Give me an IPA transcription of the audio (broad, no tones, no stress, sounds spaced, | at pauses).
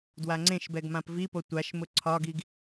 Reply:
d w a ŋ͡ǀ ẽ ʃ b ɛ ɡ m ã p v i p o tʷ a ʃ m ʊ ǀʰ ɒ ɡ i ɡ